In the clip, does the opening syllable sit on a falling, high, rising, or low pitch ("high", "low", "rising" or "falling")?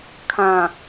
low